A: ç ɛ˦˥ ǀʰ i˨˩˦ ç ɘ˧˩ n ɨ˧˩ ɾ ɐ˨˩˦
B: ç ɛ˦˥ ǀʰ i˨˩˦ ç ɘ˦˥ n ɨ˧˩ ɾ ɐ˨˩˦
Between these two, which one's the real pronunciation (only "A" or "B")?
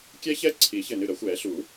A